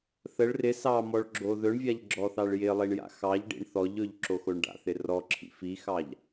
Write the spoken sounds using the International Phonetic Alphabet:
θəɭ rɪ sɑ mɔɭɡ͡ǁoðɵɳvʲaʎ ɡ͡ǁɔθɑɭjɪlˠiɳ ja̰xɑʎɖḭɳ θɔʎɵʎ ǁoxoɳɖa̰θɪ rɔǁʰḭ fixɑʎ

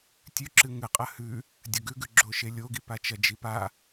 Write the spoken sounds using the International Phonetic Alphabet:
tʲʉǁɨ ŋɨqʼɐ hʉ | dʲɐɡʉɡʉɡ͡ǁo ʃelʲoɡipa t͡ʃɐd͡ʒipa

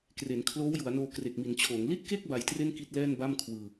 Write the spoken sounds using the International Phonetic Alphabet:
kre˩˦nkʰloː˦˥wju˩˦a̯noː˧ kre˨˩k̚mi˩˦nt͡ɕʰoː˩˦ŋ li˥˩t̚ke˥˩k̚ ba˧jtre˥˩nki˦˥t̚ lɛː˥˩nba˥˩mkʰwɯː˧

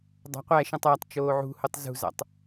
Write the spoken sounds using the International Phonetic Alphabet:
dˤɑ̤qʷæʃĩtˤ ætˤ t͡ʃoːʕṳhotˤ zṳzɑ̰tˤ

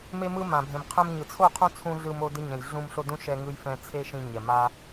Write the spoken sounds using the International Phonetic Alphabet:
me˧mɯ˧ mã˨bʱẽ˨m qʰɛ̃˧mɲɯ˨ t͡sʰo˦˨qʰõ˦t͡sʰũ˧ ɮɯ˧mo˧ dɯ˧ɲɛ̃˨j ɮũ˧m ɬo˧ dũ˦ʃɛ˧ŋɯ˧jfɛ̃˧ t͡sʰe˦ʃĩ˧ɲɛ˨ma˦

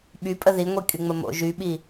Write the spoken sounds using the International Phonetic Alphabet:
ɓypʼə ðiŋʷikʼyŋ͡mə mo̰ ʒyɓi

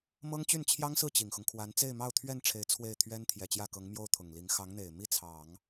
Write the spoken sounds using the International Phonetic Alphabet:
mɤ˥ŋt͡ɕy˥˩nt͡ɕʰjɑ˥ŋsɹ̩˥˩ t͡ɕi˨˩ŋxʊ˦ŋkʰwa˧˥n t͡se˥˧ɪ̯mɑ˥˧ʊ̯t̪ʰɥɛ˥˩nʈ͡ʂʰe˧˥ɪ̯ t͡sʰwe˥˩ɪ̯t̪ʰɥɛ˥n t̪ʰjɛ˨˩t͡ɕjä˥˩kɤ˧˥ŋmjo˥˩ʊ̯ t̪ʰʊ˨˩ŋli˧˥ŋ xɑ˧˥ŋn̪e˨˩ɪ̯ mi˥˩t͡sʰɑ˨˩˦ŋ

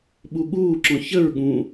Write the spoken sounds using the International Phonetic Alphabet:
ɓuɠuːǁɔ̃ çəɹ ɠũ

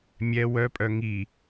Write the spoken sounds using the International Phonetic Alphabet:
mʲɛ wœpʼœ ŋi

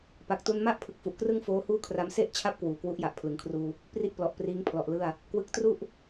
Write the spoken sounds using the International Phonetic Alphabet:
pa˨˩k̚tu˧nma˥˩ʔ pʰɯ˨˩k̚fu˨˩ʔkrɯ˥˩ŋ foː˦˥huː˥˩kʰra˦˥m se˥˩ʔ t͡ɕʰa˥˩p̚kwuː˨˩ kwu˦˥ʔja˨˩ʔ pʰlɯ˩˦ŋkʰruː˧ | pri˥˩ʔplɔ˨˩ʔpriː˦˥ŋ pʰlɔ˨˩ʔlɯ˥˩a̯ | kwɯ˦˥k̚tru˥˩ʔ

